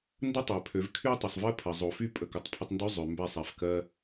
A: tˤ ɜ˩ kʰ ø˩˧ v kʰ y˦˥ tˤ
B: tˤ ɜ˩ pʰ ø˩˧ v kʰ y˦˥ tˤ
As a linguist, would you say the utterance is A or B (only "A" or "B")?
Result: B